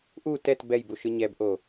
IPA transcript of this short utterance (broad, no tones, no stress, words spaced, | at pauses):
ʔu tɛt bɛjbuʃɯ ɲɛbʔo